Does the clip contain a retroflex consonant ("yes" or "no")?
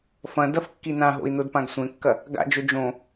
no